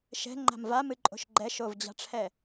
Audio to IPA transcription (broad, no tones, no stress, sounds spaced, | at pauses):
ʃ ɛ̤ ŋ͡ǃ a̤ m v a m ɨ ǃʼ o̤ ʃ ɡ͡ǃ ɛ ʃ o v d͡ʑ a̤ ʈ͡ʂʰ ɛ